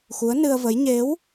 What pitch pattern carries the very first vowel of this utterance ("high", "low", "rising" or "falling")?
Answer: rising